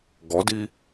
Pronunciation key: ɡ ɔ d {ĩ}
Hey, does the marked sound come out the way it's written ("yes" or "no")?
no